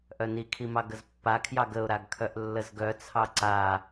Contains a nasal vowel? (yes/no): no